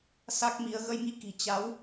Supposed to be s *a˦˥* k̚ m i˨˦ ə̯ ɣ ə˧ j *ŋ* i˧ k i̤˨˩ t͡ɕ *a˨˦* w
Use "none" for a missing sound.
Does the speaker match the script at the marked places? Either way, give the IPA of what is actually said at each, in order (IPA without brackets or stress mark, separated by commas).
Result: a˦˥, ŋ, a˨˦